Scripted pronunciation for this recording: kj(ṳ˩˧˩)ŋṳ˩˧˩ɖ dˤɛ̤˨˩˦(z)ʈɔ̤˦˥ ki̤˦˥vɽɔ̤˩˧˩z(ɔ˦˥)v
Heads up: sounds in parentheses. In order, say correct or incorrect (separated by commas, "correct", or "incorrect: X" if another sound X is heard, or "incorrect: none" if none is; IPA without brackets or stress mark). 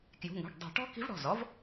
correct, incorrect: none, correct